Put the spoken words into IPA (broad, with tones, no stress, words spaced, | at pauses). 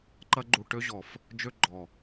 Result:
ǃɐ˧ɡ͡ǃu˨ ʈø˧ʑɔ˨f | d͡ʒø˧ɡ͡ǃɔ˨